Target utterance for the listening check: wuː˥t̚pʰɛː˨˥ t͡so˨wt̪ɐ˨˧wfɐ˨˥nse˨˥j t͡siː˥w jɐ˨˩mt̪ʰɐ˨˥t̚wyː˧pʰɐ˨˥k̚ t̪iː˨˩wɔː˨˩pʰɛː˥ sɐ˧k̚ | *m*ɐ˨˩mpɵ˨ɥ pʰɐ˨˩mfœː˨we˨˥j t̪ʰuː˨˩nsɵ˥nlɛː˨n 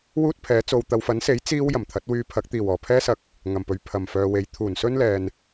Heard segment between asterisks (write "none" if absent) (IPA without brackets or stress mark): ŋ